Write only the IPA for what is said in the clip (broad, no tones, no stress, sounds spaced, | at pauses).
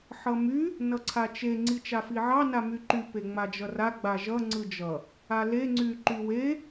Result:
ħ ʌ m y | n ʌ ǀʰ a t͡ʃ e ŋ͡ǀ i t͡ʃ a f i ʕ ɑ n a m y ǃ y p e ŋ͡m a d͡ʒ ʌ r a ɡ͡b a ʒ ʌ ŋ͡ǀ ɯ d͡ʒ ʌ | a l e ŋ͡ǀ y ǃ y w e